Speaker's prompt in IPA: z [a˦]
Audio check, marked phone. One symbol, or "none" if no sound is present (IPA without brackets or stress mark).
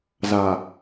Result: a˨